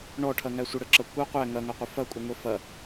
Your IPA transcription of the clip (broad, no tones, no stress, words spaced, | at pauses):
ɳɔʈʰɐŋæ sʷəɽəǁɐ kʷa qʷæ ŋɐŋaqʷə fɐkʷʼəŋʷɛ fɐ